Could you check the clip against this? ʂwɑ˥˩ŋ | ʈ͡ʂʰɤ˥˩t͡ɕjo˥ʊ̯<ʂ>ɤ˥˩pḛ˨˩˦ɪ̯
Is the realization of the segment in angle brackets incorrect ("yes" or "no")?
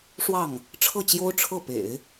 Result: yes